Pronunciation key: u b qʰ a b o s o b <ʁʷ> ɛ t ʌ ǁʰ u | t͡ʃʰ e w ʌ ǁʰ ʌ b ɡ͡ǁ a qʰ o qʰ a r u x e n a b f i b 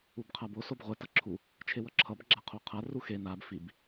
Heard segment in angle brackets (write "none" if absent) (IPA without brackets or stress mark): ʁʷ